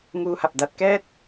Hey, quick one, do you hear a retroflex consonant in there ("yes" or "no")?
no